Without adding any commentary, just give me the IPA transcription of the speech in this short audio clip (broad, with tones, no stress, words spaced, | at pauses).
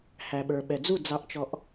hæ˨ɓə˞˨ ɓɛ˨d͡zu˦˨ d͡zɑ˧ʔt͡ʃɔ˧ʔ